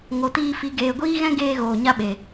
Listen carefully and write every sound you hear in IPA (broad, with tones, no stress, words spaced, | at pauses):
ŋo˨tiː˧fi˨˦ ɡeː˨ɡʷiː˦ɣɛ̃˦ ɡeː˧ ɣoː˨ɲa˦ɓe˨